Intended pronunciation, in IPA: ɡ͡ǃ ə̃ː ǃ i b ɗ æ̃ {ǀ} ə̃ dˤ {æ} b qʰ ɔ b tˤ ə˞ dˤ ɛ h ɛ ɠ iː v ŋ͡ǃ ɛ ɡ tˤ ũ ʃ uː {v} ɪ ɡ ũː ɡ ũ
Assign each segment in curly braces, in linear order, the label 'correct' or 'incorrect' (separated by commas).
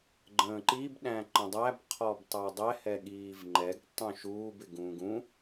incorrect, correct, incorrect